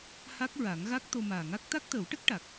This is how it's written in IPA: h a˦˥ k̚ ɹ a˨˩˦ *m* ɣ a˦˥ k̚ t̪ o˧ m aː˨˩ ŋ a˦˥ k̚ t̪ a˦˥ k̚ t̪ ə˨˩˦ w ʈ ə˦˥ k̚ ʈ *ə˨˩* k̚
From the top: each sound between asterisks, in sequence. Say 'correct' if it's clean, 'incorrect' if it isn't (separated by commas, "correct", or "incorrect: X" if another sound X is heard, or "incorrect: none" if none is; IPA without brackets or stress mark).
incorrect: ŋ, incorrect: a˨˩